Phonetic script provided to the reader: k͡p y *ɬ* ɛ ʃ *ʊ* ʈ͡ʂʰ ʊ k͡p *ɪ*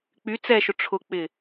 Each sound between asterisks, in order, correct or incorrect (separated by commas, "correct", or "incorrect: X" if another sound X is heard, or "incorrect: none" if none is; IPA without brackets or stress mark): incorrect: t͡s, correct, correct